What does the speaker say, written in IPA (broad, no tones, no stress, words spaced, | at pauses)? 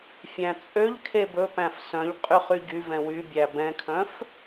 fʲæ̃t͡sʼøʎkʰe bɵpæ̃f sœ̃ʎ qʼyχyɟyvɛ̃ wybʲæ bɛ̃kʰœ̃f